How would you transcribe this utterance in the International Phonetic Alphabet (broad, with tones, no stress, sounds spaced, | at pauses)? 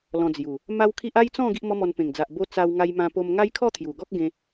l ɔ̃˧ d͡z j u˨˩ | m a˦ w kʰ i˦ ʔ a˦ j t͡s ɔ̃˥˧ ɡ i˦ ʔ m ɔ˦ m ɔ˧ n p ẽ˨˩ ŋ d͡z a˨ ʔ b o˧ t͡s a˧ w ŋ a˧ j m ã˧ p o˧ m ŋ a˦ j kʰ ɔ˥˧ t̪ʰ j u˨˩ ɡ ɔ˦ k̚ ɡ ẽ˧